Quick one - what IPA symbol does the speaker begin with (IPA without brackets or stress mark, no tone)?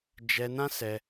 d͡ʒ